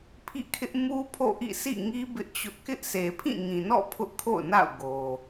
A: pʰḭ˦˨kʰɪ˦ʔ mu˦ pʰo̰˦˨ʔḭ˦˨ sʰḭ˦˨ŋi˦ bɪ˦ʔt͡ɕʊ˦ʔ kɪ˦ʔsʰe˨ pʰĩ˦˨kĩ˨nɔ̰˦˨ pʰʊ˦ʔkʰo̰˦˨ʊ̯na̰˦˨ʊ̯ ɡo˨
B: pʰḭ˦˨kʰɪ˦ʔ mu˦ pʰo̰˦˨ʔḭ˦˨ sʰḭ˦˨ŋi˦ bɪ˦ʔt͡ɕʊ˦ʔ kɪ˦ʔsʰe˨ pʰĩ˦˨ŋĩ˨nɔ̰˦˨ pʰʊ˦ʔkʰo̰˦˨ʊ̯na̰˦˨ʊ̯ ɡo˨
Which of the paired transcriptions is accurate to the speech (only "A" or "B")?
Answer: B